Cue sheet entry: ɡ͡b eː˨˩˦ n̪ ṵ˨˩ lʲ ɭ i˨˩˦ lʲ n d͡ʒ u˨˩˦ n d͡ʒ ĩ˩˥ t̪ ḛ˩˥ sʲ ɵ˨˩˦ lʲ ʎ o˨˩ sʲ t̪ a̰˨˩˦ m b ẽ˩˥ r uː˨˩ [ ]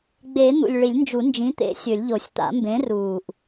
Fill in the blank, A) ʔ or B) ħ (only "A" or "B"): A